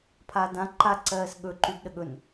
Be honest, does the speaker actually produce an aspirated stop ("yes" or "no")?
yes